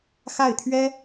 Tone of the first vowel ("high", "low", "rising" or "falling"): falling